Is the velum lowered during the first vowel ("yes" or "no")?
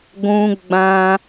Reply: yes